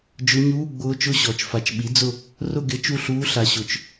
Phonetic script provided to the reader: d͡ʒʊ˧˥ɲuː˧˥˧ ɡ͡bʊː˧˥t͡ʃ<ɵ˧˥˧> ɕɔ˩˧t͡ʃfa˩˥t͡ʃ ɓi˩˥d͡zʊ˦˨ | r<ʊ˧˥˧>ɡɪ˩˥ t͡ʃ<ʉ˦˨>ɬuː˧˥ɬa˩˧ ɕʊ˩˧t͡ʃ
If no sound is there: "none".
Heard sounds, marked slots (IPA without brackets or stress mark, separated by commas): ʊ˧˥˧, ʊ˦˨, u˦˨